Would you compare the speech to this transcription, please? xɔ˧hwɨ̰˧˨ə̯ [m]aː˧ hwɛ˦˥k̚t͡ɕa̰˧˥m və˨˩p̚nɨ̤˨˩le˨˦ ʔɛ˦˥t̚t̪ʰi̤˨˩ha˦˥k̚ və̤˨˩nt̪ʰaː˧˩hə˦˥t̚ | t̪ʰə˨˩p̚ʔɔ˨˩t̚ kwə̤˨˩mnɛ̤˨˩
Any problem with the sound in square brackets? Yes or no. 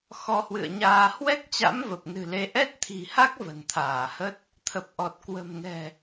yes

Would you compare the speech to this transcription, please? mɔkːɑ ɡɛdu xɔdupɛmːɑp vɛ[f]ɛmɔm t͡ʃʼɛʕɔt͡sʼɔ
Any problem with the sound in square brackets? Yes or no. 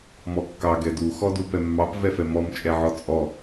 no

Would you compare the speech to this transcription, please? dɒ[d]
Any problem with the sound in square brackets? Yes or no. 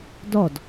no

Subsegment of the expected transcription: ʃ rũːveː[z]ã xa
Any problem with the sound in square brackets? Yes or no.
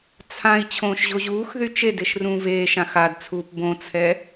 yes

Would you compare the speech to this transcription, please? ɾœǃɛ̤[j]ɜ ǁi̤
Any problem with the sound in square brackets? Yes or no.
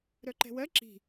yes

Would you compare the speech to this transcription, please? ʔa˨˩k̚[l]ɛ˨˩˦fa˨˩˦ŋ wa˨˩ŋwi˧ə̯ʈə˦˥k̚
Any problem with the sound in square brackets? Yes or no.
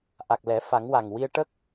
no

